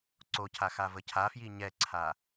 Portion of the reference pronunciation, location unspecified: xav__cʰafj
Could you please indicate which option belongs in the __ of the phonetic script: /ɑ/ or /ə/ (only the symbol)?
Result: ə